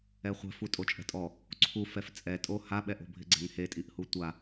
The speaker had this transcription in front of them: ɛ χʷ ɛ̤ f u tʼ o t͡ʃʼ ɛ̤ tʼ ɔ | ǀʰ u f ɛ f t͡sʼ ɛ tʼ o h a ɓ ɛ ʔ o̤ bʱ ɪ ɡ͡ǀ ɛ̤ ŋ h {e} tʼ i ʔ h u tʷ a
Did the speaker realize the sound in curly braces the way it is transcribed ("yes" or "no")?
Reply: yes